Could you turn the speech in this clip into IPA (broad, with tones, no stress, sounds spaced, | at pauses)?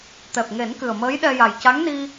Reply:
t̪ ɛ˨˩ p̚ ŋ e˨˩˦ n k ɨ˨˩ ə̯ m əː˧˥ j ɗ ɛ˧ j a˨˩ j c a˧˥ ŋ n i˧